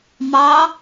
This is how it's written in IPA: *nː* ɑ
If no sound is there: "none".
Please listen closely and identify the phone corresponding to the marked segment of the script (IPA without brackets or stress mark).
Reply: m